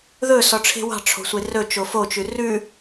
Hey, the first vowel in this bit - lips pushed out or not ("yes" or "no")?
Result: yes